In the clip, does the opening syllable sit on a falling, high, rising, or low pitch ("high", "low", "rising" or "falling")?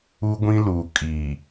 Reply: high